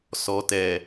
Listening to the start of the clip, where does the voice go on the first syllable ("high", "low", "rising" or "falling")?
low